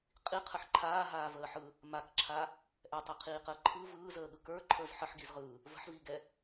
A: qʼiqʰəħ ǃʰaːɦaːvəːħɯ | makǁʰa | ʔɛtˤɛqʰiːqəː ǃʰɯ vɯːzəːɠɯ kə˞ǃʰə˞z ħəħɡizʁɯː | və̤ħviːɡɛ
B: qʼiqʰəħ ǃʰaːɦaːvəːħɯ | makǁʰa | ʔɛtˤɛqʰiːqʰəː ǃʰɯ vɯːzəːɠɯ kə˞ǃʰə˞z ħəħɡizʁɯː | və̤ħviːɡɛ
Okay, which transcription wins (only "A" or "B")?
A